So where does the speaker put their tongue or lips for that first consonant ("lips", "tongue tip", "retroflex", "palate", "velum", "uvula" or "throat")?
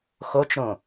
velum